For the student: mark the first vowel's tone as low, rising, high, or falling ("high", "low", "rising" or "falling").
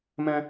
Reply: high